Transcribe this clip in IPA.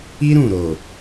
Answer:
i˦ ɾ ũ˦˨ ɾ o˨

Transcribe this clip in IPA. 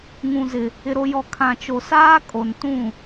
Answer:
ŋ ũ˨ z ɪ˨ | ɪ˨ ɾ o˨ j ɔ˨ kʰ ã˨ t͡ʃ o˨ s aː˦ kʼ o˨ n t ũ˦˨

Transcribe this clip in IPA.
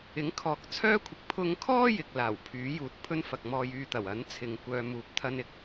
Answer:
ɪ˨˥ ŋ kʰ ɔː˨ k̚ t͡sʰ œː˥ kʷʰ ɪ˨ k̚ pʰ ʊ˧ ŋ kʰ ɔː˥ j ɪ˨ k̚ l aː˨˩ w pʰ yː˨˥ j uː˨ t̚ pʰ ɵ˥ n f ɐ˨ k̚ m ɔː˧ j yː˧ t̪ ɐ˨˩ w ɐ˨˥ n t͡sʰ ɪ˨ ŋ kʷ œː˨ m uː˨ p̚ t̪ʰ ɐ˧ n ɪ˥ k̚

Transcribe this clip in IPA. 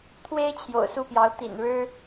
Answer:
t̪ʰ w e˥ ɪ̯ t͡ɕʰ j o̰˨˩ ʊ̯ s u˥˩ p j ɑ˧˥ ʊ̯ t̪ ḭ˨˩ n ɻ ɻ̩˥

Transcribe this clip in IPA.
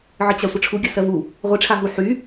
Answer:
ʕ ə t͡ɕ a sʷ ə ʈ͡ʂʰ u ɡʲ ə s ɜ v u | ʁʷ i ʈ͡ʂʰ a ɦ u ħ y

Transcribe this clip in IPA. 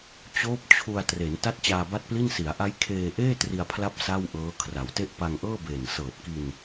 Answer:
t͡ɕ oː˦˥ p̚ t͡ɕʰ u˧ a̯ t r e˩˦ n t a˥˩ t̚ t͡ɕ aː˧ b a˥˩ t̚ p l i˥˩ n s i˩˦ a̯ ʔ a˦˥ j kʰ eː˧ ʔ eː˥˩ t r i˧ a̯ pʰ l a˥˩ p̚ s a˥˩ w ʔ ɤː˦˥ kʰ r a˩˦ w t e˥˩ ʔ p a˧ ŋ ʔ ɤː˥˩ b eː˨˩ n s ɤː˨˩ t̚ k i˧ n

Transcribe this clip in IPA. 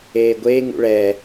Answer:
eː ɡʷ eː ŋ ṵ ɭ ɛː

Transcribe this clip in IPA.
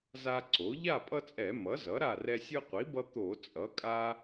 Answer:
z a˦ ǀ o˩˥ ʎ a˥˨ pʼ ʌ˦ t͡sʼ ɛ˧˩˧ m ʌ˩˥ z ʌ˩˥ ɾ a˥˨ r ɛ˦ sʲ ɯ˦ qʷ i˩˥ b ʌ˦ t̪ o˧˩˧ t͡sʼ ʌ˩˥ kʼ a˦

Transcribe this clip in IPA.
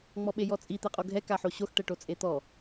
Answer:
ŋ͡m ɔ ɓ e j ɔ t͡sʼ i t̪ ɛ qʼ o ɡʱ ɛ k a ħ o ɕ o x ʈ ɛ ʈ o t͡sʼ e t̪ ɔ

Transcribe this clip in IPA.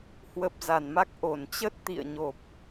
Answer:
h w ə˨˩ p̚ z a˧˩ n m a˦˥ k̚ ʔ o˧˩ n t͡ɕ ə˦˥ t̚ t̪ ḭ˧˨ ə̯ ɲ o˨˩ p̚

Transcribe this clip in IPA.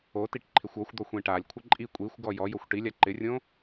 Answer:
o t i ʈ ǃʰ ɪ xʷ ɔ xʷ d̪ ɔ xʷ ẽ ʈ a lʲ kʷʰ ɪ ǃʼ i kʷʼ i xʷ ɡ ɔ j ɔ j o xʷ ʈ i lʲ a ǃ ɪ rʲ õ

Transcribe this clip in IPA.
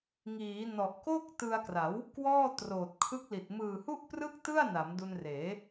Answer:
ŋ iː˩˦ n ɔ˨˩ ʔ k o˥˩ k̚ t ɯ˧ a̯ k r a˩˦ w | k w ɔː˥˩ t r oː˨˩ t̚ kʰ ɯ˦˥ k̚ l i˨˩ t̚ m ɯː˨˩ h u˥˩ ʔ p r ɯ˥˩ k̚ t ɯ˥˩ a̯ n a˩˦ m d u˧ n r eː˩˦

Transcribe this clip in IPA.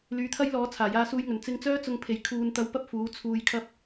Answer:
l yː˨˥ t̪ʰ ɐ˥ j l ɔː˨˥ t͡sʰ aː˨˩ j aː˧ s uː˧ j ŋ ɵ˨˩ n t͡s ɪ˧ ŋ t͡s œː˥ t͡s ʊ˧ ŋ pʰ e˨˥ j kʰ uː˧ n t̪ ɐ˧ w p ɐ˥ p̚ f uː˨˥ t͡sʰ uː˧ j kʰ ɐ˥ p̚

